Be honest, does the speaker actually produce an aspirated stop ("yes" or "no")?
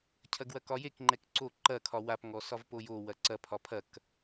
yes